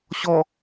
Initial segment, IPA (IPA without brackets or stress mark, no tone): ɕ